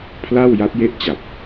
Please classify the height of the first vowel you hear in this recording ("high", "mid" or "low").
low